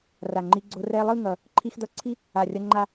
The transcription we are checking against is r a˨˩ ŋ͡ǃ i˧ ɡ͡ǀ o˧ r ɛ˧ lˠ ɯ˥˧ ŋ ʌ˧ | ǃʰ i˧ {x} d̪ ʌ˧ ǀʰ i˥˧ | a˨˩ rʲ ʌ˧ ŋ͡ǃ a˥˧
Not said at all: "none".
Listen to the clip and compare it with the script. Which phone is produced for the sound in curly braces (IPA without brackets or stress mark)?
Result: x